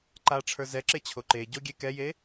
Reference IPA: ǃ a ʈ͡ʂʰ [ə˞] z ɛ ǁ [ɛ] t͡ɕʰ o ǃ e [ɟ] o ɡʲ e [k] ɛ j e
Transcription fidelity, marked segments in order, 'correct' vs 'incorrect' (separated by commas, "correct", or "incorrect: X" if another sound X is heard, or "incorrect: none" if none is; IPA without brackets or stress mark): correct, incorrect: e, correct, correct